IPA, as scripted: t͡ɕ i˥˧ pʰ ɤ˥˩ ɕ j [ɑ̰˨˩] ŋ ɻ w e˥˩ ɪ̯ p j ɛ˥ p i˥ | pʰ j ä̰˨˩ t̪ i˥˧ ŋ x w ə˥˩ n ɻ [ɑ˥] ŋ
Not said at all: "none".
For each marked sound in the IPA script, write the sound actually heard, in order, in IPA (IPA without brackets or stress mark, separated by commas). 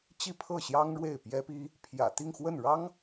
ɑ˥, ɑ˥